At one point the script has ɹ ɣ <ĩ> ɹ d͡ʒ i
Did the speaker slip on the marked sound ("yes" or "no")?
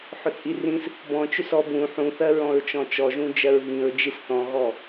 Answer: no